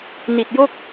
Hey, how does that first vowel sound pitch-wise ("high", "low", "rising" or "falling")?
low